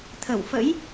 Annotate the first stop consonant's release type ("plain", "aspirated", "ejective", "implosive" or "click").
aspirated